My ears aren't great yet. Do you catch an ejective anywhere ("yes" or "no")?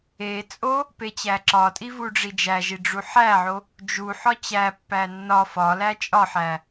yes